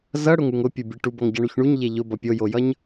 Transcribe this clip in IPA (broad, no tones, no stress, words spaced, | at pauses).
zʌɽʊŋuŋ ʊpʲubʲe ʈubʌŋɟʌɳuç ɳuɲʎe ʎʊbʌ pʲojojʌɲ